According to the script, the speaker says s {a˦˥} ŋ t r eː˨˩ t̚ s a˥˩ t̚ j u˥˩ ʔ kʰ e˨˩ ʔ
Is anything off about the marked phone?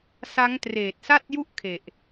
no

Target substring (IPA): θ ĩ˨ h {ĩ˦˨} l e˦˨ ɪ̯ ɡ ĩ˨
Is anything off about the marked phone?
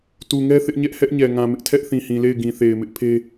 yes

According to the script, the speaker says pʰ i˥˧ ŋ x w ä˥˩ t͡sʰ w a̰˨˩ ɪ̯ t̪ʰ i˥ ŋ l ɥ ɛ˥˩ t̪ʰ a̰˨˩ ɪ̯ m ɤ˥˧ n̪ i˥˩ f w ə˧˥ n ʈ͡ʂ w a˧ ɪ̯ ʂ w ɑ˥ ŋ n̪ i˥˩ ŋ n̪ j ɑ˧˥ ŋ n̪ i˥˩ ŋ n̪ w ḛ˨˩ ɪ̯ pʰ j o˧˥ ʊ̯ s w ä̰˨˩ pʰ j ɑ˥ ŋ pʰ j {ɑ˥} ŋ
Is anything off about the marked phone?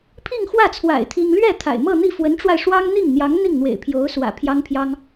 no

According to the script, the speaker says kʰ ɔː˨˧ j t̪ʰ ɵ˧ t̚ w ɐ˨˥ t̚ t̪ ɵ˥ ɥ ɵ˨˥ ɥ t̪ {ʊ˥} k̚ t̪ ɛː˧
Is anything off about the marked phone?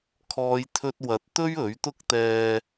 no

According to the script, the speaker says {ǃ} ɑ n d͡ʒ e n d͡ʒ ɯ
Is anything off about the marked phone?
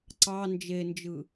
yes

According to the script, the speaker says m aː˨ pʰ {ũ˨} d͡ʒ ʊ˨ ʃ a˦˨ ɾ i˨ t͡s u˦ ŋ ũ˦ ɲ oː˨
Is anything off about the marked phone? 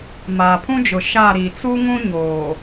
yes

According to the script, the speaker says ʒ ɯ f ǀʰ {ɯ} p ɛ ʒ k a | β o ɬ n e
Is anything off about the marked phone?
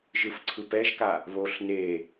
no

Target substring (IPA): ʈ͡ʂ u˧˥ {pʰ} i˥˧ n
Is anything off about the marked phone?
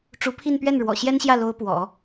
no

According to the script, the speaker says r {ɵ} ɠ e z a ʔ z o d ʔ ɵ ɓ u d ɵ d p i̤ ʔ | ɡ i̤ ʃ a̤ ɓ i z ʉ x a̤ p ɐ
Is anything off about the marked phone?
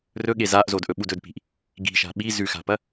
no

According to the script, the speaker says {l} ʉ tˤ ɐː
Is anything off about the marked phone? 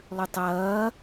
yes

